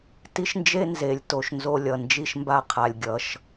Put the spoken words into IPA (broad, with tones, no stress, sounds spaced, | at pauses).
t i˦ ʃ n d͡ʒ e˦ n z e˧ lʲ t o˧ ʃ n z o˧ lʲ ʌ˨ n d͡ʒ i˧ ʃ m b a˧ qʰ a˨ lʲ ɡʲ ʌ˨ ʃ